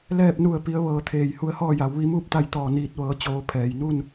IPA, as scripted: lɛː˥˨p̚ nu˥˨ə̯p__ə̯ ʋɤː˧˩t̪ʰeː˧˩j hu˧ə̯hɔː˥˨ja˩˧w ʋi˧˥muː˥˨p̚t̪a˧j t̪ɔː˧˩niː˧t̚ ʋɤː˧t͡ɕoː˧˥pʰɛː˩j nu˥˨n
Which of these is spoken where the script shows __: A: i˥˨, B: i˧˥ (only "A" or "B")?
B